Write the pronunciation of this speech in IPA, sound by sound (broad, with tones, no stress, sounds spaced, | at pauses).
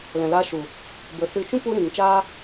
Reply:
l ɛ̃˨ l a˧ ʃ u˨ | b ə˨˦ s ɨ˧ t͡ʃ ũ˦ p u˧ ɾ ĩ˨ ŋ t͡ʃ aː˦